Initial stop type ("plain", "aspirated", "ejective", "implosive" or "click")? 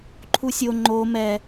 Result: click